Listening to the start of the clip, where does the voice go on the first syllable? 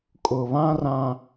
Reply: low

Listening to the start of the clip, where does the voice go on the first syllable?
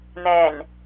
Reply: low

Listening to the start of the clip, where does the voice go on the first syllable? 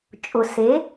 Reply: low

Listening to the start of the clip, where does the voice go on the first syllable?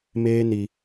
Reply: high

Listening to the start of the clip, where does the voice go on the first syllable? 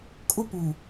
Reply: high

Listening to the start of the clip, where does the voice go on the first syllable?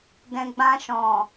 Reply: low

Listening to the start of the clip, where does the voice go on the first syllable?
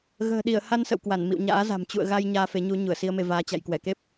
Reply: low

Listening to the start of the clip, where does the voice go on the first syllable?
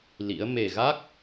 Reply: rising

